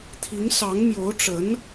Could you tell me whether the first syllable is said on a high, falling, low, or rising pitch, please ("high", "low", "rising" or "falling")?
rising